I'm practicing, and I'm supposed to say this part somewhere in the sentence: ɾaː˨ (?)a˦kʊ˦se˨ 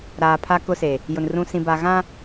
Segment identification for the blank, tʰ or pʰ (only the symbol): pʰ